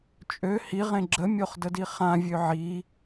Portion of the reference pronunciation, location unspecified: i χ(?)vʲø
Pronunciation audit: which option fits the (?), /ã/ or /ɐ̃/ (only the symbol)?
ã